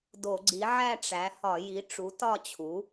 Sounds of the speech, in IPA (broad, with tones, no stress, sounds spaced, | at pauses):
d o˧˩˧ ɡ͡ǀ i˩˥ ʕ æ˥˨ ʈ͡ʂ æ˩˥ h ɒ˧˩˧ j i˩˥ ʈ͡ʂ u˩˥ t ɒ˥˨ t͡ɕʰ u˩˥